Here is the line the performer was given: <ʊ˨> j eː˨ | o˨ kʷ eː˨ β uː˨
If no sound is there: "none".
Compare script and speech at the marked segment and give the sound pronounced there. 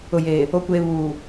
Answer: ʊ˨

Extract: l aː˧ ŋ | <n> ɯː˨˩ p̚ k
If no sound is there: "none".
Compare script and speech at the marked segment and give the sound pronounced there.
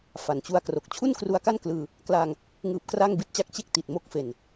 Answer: ŋ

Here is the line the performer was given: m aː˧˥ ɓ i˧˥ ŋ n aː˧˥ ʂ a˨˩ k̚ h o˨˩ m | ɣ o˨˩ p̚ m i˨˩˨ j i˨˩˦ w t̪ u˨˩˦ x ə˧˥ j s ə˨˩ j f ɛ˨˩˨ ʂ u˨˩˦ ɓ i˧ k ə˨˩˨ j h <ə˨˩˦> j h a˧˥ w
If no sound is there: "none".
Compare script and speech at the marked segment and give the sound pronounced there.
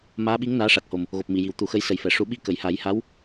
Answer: a˨˩˦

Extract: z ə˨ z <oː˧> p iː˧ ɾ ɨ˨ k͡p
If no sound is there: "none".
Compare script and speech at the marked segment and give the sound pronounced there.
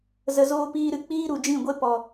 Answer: oː˧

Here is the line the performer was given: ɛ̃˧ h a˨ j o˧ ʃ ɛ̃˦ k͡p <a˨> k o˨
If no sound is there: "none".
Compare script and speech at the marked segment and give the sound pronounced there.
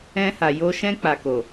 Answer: a˧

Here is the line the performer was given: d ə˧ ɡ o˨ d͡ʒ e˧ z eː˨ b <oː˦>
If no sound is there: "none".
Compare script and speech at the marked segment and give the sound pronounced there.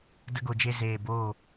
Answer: oː˦˨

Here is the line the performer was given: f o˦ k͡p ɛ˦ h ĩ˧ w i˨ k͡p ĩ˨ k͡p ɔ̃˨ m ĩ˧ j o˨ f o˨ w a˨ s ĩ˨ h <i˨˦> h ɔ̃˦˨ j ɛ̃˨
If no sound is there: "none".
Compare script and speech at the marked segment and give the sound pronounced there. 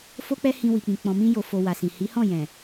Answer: i˨˦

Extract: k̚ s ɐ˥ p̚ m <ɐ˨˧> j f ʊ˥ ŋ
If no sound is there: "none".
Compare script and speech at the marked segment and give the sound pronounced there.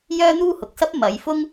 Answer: ɐ˨˧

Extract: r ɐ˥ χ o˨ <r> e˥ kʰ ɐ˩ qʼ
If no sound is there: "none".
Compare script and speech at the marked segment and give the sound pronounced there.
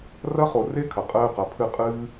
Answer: r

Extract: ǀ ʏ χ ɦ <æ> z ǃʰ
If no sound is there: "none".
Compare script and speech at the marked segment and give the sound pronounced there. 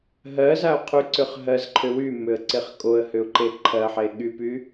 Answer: ɜ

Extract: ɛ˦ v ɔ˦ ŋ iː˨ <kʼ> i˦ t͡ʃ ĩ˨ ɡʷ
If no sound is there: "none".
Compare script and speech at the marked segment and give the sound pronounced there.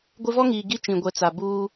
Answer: ɡ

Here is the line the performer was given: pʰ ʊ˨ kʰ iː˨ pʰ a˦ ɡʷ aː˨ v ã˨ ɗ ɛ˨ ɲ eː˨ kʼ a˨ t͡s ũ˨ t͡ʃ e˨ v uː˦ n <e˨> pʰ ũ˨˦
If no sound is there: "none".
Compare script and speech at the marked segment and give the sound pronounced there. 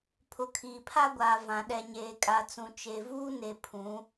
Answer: e˨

